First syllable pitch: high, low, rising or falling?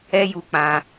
high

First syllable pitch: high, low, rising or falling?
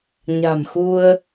low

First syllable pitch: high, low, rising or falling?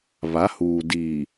rising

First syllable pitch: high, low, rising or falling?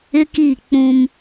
high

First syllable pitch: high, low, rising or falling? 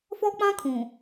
high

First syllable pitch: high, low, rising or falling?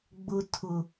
low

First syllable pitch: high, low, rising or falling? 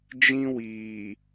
high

